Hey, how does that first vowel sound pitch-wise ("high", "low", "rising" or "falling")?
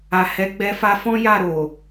low